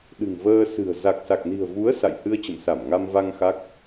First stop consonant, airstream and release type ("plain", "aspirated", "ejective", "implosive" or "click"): implosive